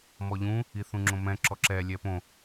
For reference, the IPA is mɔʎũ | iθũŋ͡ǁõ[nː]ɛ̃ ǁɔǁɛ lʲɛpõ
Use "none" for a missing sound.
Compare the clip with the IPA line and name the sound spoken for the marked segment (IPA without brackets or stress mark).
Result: m